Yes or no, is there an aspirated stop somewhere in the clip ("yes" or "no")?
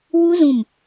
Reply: no